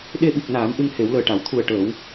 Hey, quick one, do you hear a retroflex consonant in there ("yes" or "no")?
yes